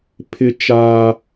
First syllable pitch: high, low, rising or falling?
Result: high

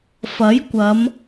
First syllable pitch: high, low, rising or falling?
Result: rising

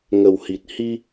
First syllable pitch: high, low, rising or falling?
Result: low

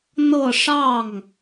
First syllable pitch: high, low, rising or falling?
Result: falling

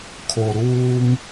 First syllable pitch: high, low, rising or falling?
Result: low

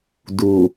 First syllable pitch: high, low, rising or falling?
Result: low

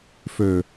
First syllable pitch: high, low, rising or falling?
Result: low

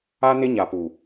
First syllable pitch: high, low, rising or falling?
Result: high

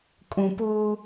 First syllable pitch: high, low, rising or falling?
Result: low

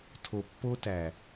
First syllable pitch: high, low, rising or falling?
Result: low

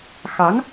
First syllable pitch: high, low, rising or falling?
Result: rising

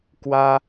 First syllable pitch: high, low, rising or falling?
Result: high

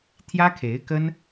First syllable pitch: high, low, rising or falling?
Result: high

